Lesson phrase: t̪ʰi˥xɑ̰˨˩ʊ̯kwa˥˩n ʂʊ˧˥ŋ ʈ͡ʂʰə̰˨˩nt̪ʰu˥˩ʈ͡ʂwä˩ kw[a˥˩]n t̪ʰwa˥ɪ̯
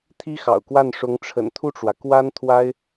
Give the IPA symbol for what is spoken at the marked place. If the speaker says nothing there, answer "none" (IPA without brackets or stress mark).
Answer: a˥